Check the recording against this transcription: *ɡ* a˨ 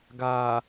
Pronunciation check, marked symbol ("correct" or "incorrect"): correct